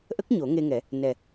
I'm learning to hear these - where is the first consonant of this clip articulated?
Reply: throat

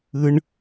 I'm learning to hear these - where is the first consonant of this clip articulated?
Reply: retroflex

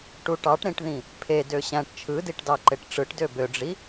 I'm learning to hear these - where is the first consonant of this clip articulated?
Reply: retroflex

